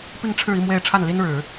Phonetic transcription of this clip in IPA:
p i˥˧ ŋ ʈ͡ʂʰ ɻ̩˥˧ i˥˩ m w e˨˩ ɪ̯ ʈ͡ʂʰ a˥˩ n l i˥ n ɻ ɻ̩˨˩˦

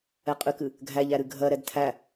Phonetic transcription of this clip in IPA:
ɛ qʼ ɨ k ɨ | ɡʱ æ ʎ æ ɾ ɨ ɡʱ ɜ ɾ ɛ d tʰ æ

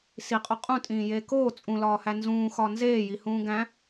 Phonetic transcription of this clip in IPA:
s i qʼ o qʼ ũ tʼ ĩː j eː k oː t͡sʼ ũ l ɒː h æ n z ũː x ɒ n z eː j i h ũː ɡ æ̃

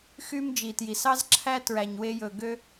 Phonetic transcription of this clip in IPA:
x y˦ m d͡ʒ i˨ t j i˨ s ɑ˦ z ǁʰ æ˦ t ɹ æ˨ ɲ w e˧ j ɵ˨ ɡ ø˧

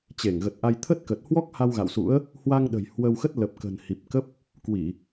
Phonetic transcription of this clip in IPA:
t͡ɕ e˧˩ ŋ ɣ ə˨˩ t̚ ʔ a˧ j t̪ʰ ə˦˥ t̚ k ə˨˩ t̚ h w ɔ˦˥ k̚ h a˧ w ɣ a̰˧˨ w s ṵ˧˥ ə̯ | h w a˧ ŋ ɗ ə̤˨˩ j h w ə˧ w x ə˦˥ t̚ l ə˨˩ p̚ k ə̤˨˩ n h i˨˩ p̚ k ə˦˥ p̚ | k w i˧˩˨

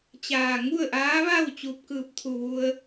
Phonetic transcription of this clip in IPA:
t͡ɕ aː˧˩ ŋ u˥˨ ə̯ ʔ aː˧˥ ʋ a˥˨ w t͡ɕ u˧ p̚ k ɯː˧˩ p̚ t̪ʰ u˧˩ ʋ u˧ ə̯

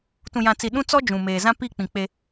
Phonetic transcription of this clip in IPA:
t ũ˨ j ã˨ t͡s i˨ ɗ ũ˦ t͡s ɔ˦ d͡ʒ ũ˨ m eː˨ z ã˦ p i˦˨ k͡p ĩ˨ k͡p e˦

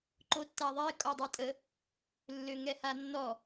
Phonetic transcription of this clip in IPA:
ǃ o tː a ðˤ e kʼ ɔ dˤ i tʼ ə | lː ø ŋ ɛ h a nː ɔ

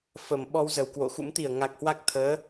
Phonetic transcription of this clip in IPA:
f ə˨˩ m ɓ ɔ˧ w z ə˨˩ w k w o̰˧˨ x ṵ˧˥ m t̪ i˨˩ ə̯ ŋ a˨˩ k̚ h w a˦˥ k̚ t̪ʰ əː˨˦

